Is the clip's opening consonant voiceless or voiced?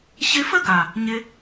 voiceless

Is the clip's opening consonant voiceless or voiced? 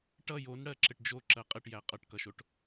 voiceless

